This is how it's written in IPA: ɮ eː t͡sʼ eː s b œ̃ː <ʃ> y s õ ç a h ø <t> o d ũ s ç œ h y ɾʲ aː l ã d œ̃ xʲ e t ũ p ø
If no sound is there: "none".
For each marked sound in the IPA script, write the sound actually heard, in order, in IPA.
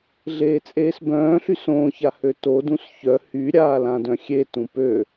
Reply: ɬ, t

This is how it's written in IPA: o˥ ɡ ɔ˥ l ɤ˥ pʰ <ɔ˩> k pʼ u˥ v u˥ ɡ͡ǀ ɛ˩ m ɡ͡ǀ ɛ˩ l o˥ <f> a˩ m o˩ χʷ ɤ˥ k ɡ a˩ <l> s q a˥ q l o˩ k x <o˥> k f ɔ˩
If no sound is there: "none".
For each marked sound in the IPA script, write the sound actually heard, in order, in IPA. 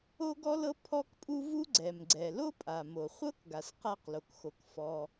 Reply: ɔ˥, pʼ, none, o˩

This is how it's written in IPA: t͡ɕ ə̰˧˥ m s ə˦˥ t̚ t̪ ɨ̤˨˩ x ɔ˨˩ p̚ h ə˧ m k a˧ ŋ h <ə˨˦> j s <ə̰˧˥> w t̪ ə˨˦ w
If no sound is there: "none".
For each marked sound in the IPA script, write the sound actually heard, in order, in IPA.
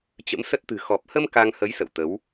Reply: ə˨˦, ə̰˧˨

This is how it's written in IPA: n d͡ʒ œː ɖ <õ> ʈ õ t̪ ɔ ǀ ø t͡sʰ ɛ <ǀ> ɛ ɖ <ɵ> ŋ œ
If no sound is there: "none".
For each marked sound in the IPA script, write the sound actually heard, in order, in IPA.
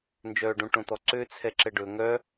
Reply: õ, ǁ, ɵ

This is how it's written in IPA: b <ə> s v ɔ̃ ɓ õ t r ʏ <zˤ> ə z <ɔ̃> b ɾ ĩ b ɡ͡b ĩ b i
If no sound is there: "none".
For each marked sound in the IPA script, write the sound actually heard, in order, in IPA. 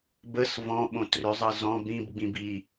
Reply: ə, zˤ, ɔ̃

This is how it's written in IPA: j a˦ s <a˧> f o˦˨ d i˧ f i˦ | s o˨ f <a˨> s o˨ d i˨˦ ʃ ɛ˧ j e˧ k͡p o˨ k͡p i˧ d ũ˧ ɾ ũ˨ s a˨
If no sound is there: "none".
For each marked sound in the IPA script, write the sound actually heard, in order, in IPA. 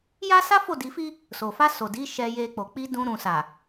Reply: a˦, a˧

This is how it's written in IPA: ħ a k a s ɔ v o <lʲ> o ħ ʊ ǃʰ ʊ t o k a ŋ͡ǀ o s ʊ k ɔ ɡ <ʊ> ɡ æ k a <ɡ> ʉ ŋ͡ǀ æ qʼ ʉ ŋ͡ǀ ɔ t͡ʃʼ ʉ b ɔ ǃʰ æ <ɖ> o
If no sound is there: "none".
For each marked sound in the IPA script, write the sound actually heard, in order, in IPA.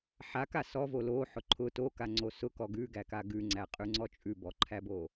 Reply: l, ʉ, ɡ, b

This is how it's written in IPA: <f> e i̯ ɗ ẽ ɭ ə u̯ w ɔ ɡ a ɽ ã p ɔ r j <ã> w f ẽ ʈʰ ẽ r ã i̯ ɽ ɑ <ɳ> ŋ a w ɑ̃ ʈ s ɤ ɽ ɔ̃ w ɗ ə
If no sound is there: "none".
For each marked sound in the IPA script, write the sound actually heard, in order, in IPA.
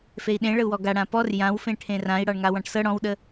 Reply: f, ã, ɳ

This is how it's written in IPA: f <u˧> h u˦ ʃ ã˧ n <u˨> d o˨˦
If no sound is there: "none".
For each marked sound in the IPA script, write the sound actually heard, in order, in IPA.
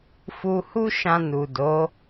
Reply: u˧, u˨

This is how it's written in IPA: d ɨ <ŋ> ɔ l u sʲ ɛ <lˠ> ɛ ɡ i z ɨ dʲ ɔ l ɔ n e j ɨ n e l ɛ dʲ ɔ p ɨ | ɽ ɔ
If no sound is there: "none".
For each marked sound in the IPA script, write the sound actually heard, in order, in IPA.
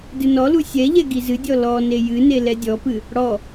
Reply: n, ʎ

